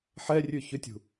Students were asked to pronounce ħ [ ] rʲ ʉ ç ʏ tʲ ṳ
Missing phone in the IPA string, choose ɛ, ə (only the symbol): ɛ